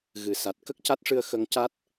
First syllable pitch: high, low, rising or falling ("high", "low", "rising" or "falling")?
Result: low